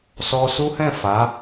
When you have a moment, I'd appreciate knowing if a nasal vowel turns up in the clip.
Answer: yes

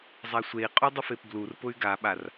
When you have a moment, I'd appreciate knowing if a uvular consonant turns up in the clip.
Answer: yes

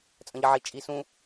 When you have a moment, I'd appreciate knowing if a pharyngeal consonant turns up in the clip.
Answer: yes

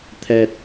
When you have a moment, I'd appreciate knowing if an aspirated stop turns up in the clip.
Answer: yes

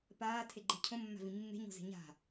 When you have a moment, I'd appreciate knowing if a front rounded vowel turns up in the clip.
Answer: no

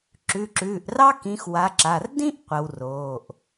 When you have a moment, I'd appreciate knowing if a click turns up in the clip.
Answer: yes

